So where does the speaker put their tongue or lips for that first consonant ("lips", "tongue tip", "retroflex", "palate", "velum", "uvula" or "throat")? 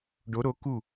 retroflex